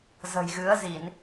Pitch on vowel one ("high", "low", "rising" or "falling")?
low